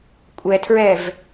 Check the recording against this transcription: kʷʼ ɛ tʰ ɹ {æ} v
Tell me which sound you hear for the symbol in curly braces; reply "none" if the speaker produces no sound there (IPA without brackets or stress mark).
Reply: ɛ